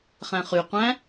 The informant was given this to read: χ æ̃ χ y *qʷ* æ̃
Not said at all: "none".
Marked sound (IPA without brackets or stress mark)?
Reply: qʷ